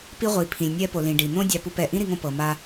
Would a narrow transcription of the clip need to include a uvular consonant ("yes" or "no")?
yes